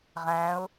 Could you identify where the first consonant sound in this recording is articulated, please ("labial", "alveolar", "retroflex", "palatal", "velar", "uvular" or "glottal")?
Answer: uvular